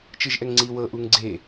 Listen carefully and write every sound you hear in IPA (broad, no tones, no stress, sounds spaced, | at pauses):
t͡ʃ ɯ ʒ ʔ ɛ ŋ ŋ͡ǀ i w ɤ ʔ u ŋ ɡ͡ǀ e